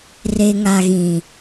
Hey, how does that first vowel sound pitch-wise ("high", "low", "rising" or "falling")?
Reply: low